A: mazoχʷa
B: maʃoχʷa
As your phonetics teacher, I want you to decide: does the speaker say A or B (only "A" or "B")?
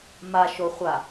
B